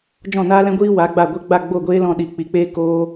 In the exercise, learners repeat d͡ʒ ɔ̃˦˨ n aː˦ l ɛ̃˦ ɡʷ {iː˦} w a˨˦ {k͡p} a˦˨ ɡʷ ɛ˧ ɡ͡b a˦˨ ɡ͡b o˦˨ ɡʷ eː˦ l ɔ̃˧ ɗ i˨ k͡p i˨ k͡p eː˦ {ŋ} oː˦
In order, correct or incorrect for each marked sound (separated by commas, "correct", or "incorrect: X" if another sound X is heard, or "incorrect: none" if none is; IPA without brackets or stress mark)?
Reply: correct, incorrect: ɡ͡b, incorrect: k